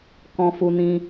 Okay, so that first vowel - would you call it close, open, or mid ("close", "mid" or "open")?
mid